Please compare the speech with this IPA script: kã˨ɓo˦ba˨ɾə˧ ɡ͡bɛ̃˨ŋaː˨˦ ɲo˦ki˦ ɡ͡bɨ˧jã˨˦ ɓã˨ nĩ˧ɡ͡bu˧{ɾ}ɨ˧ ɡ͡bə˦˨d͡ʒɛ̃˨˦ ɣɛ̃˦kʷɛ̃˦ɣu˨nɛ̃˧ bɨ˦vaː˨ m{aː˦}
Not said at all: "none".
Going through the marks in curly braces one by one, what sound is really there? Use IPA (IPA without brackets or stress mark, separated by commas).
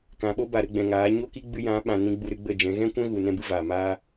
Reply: ɾ, aː˦